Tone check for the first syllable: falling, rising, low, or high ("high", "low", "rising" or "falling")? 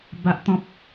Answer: high